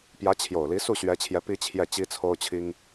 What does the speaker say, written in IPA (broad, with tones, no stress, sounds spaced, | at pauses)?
p j ä˧˥ t͡ɕʰ j o˨˩ ʊ̯ l i˧˥ s u˥˩ ɕ ɥ ɛ˧˥ t͡ɕʰ j ɛ˧˥ p i˥ t͡ɕʰ j ɛ˥˩ t͡ɕ i˥ t͡sʰ o˥ ʊ̯ t͡ɕʰ i˥ ŋ